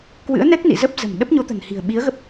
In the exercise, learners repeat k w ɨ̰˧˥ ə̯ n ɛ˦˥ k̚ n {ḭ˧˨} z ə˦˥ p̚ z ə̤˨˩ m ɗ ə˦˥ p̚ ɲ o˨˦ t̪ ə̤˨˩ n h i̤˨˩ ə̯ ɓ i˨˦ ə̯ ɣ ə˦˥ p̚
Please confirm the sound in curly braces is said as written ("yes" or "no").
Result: yes